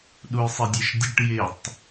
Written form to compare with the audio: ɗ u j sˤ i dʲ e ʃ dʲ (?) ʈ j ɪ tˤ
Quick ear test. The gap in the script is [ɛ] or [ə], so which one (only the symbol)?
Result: ə